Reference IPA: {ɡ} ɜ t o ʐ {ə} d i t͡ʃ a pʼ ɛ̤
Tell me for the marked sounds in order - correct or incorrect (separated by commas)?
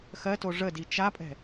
incorrect, correct